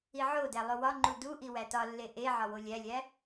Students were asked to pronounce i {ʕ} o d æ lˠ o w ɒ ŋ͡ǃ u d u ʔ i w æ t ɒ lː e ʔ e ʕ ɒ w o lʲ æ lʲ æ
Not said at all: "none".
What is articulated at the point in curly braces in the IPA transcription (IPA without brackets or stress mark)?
ʕ